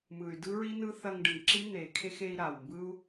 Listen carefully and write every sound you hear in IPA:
mɯ˨y̯dɯ˦ɹi˦nɯ˦ θɐ˧ŋɖɯ˨ŋǁi˦ n̪e˨kʰe˦x e˧i̯ɾa˨wmbɯ˦u̯

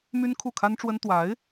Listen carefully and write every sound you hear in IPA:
my˥nkʰu˥˩kʰa˥nʈ͡ʂwə˥n t̪wa˧˥ɪ̯

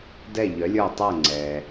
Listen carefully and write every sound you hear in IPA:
dɛ˥˩ʎœ˩˥lʲə˞˥˩tˤe˥˩ ŋ͡ǀɛ˩

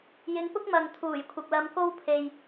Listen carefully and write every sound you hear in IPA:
jɪ˨˧ŋpʊ˥k̚ mɐ˨ŋt̪ʰuː˨˩jkʷʰɪ˨k̚lɐ˧m ko˥wpʰe˨j

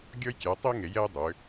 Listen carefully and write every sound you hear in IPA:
ɡʲɔ˥jkʲæ˨˦tˤi˥ ŋe˨˦jɛ˥j dˤʏ˨˦

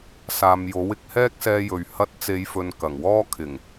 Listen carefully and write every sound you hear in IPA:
saː˨mjo˨˥wɪ˨˥k̚ hɛː˥k̚sɛː˧jɵ˨ɥ hɐ˧t̚t͡se˨˧jfɵ˨n kɐ˨˩ŋwɔː˥kʰɪ˨˩ŋ

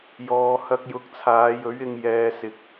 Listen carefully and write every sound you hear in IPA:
jɔː˨ hɐ˧k̚jʊ˨˥k̚t͡sʰaː˨˧jɵ˨˥ɥ ɪ˧ŋ jɛː˨sɪ˨k̚

